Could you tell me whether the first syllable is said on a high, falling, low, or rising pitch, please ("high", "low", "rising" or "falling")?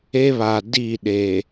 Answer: high